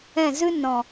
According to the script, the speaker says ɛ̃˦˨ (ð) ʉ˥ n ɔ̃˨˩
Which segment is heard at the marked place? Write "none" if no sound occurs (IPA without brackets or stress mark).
z